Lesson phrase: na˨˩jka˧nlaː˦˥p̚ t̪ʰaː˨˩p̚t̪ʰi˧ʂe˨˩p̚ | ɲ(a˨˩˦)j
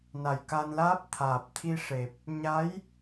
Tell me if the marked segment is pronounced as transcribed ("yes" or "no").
no